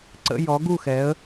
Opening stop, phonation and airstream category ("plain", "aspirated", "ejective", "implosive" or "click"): click